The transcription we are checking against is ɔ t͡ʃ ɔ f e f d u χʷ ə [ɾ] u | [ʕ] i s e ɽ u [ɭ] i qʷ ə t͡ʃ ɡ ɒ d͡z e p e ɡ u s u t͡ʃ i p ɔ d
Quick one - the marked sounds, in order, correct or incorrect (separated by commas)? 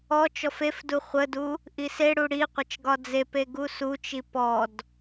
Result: incorrect, incorrect, incorrect